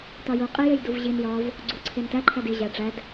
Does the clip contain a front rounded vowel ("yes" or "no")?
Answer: no